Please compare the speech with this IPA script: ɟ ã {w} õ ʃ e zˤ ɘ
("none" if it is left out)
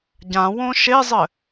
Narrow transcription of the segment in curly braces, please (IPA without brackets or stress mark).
w